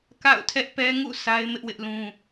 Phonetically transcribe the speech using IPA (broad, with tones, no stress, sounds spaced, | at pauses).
k a̰˦˨ ʊ̯ tʰ ɛ˦ ʔ p ɛ˦ ŋ ṵ˦˨ sʰ a˦ ɪ̯ m ɪ˦ ʔ w ɪ˦ ʔ l ũ˦